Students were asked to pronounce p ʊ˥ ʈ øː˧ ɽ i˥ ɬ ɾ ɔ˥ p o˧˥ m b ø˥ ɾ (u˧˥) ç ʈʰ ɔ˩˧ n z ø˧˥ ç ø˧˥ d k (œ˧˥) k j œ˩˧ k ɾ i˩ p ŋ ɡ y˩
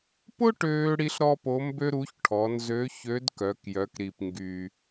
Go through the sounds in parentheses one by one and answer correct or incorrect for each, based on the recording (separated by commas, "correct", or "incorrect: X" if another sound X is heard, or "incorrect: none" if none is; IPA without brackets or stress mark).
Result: correct, incorrect: œ˩˧